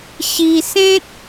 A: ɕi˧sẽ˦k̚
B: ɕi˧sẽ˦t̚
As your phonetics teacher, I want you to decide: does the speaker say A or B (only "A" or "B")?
B